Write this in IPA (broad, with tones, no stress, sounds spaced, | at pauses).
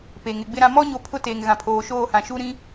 p e˨ ŋ ɪ˨ ɡ͡b ɪ˦ ɾ ã˦ m ɔ˦ ɲ o˨˦ pʰ ʊ˦ t eː˨ ŋ ɣ ã˨ pʰ oː˨ ʃ oː˦˨ h ã˨ ʃ u˦ ɾ ĩ˦